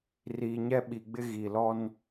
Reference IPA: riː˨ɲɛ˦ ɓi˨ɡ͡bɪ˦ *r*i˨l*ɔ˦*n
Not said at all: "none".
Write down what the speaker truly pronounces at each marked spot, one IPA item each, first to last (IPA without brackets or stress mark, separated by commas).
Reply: ɣ, ɔ˦